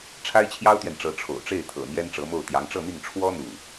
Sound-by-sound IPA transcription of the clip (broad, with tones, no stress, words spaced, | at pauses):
ʈ͡ʂʰa˥ɪ̯t͡ɕʰjɑ˥ʊ̯t̪ɥɛ˨nʈ͡ʂɤ˧˥ ʈ͡ʂʰo̰˨˩ʊ̯ʈ͡ʂe˥˩ɪ̯t̪ʰɤ̰˨˩ n̪jɛ˥nʈ͡ʂɤ˧˥mo˥˩ʊ̯ t̪jɑ˧˥ŋʈ͡ʂɤ˥˧n̪i˥˩ŋ ʈ͡ʂʰwɔ˥ n̪u˥˩